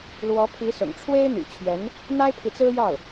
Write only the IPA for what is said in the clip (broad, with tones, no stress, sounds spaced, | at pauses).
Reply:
l w ɔ˧˥ pʰ i˧˥ s ʊ̰˨˩ ŋ ʈ͡ʂʰ w e˥ ɪ̯ n̪ y̰˨˩ t͡ɕʰ ɥ ɛ˧˥ n | n̪ a˥ ɪ̯ pʰ i˨ t͡s ɹ̩˥ j ɑ˥˩ ʊ̯